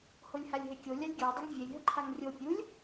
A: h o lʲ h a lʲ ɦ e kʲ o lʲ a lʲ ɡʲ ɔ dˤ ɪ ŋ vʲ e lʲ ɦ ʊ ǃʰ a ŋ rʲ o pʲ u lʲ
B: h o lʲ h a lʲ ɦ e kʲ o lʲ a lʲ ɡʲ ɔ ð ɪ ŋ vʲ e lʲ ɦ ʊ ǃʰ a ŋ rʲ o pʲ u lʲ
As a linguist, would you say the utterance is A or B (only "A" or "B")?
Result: A